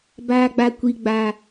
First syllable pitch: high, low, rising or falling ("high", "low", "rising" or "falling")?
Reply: high